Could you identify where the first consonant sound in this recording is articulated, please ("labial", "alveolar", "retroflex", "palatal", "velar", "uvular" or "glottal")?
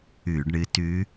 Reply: retroflex